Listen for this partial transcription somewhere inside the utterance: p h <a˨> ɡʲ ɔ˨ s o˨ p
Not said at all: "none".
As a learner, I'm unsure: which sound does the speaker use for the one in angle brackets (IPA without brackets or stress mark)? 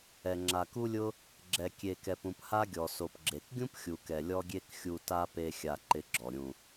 a˦